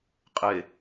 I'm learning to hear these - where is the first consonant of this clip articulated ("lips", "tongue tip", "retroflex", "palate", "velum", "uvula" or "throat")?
uvula